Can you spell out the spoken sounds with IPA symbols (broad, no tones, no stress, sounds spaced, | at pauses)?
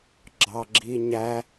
ɡ͡ǁ ɑ ɡ͡ǁ i ɲ æ